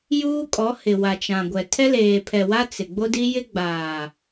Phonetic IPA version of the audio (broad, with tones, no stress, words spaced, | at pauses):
juː˦kʼɔ˨˦hɪ˨ wa˨t͡ʃã˨ ɡʷɛ˨ tʰɛ˦leː˨pʰɛ˨wa˦ t͡sɪ˨ ɡ͡bo˦di˦ jɪ˦ɡ͡baː˨